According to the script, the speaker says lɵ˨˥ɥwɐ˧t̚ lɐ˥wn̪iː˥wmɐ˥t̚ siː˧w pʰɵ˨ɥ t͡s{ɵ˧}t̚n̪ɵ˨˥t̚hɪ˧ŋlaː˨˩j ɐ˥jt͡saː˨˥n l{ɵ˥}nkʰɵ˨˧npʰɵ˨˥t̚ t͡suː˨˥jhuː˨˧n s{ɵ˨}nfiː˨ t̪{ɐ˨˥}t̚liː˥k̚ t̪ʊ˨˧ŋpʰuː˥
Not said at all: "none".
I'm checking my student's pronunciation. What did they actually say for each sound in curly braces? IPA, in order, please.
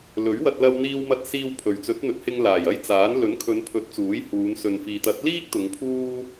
ɵ˨˥, ɵ˨˥, ɵ˨, ɐ˨˥

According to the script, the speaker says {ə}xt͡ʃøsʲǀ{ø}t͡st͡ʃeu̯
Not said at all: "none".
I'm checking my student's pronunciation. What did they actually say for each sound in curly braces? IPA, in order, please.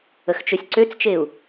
ə, ø

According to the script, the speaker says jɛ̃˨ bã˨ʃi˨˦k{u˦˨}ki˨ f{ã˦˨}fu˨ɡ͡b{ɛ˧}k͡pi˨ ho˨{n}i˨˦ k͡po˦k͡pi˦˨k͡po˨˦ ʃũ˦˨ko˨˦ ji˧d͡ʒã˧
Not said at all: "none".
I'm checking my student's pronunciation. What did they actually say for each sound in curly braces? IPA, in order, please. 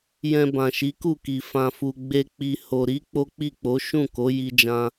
u˦˨, ã˨, e˧, ɾ

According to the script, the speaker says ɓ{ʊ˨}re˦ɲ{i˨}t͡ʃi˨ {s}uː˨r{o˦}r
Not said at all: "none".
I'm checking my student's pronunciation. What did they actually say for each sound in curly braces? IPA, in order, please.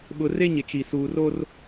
ʊ˨, ɪ˨, s, o˦

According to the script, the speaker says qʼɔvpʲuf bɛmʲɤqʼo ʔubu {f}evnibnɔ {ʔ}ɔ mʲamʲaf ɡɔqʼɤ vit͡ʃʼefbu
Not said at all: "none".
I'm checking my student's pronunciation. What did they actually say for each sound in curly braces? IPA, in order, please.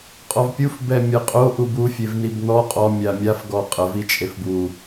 fʲ, qʼ

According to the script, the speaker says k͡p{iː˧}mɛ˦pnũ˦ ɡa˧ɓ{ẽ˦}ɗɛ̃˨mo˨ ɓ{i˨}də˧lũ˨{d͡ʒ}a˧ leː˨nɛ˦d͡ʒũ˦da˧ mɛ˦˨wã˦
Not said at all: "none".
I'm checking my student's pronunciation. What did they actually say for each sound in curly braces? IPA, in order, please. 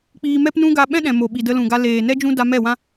iː˧, ɛ̃˦, i˨, ɡ

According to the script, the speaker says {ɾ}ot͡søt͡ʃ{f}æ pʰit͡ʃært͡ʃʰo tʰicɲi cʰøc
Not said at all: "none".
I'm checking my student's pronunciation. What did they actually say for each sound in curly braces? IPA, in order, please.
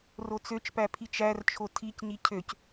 r, p

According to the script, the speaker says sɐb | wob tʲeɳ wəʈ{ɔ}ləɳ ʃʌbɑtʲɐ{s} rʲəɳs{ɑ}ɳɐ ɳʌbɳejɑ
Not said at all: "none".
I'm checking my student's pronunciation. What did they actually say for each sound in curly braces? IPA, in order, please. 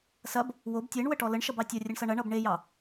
ɔ, none, ʌ

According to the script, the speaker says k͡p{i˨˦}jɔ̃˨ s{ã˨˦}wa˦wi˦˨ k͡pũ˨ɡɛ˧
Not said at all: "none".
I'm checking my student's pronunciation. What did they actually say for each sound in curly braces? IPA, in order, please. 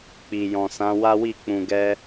i˨, ã˨˦

